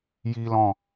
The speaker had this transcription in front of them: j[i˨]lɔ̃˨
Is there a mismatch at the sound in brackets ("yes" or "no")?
no